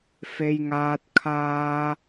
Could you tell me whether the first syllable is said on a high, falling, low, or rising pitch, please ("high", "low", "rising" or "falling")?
high